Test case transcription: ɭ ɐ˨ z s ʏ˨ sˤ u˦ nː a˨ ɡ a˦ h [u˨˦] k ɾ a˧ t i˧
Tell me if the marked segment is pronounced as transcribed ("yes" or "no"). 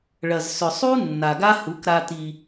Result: yes